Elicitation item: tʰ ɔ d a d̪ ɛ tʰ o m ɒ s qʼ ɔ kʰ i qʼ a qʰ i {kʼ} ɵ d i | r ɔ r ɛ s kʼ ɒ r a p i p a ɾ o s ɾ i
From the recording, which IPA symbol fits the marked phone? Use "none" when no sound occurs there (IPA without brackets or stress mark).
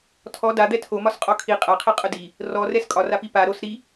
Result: qʼ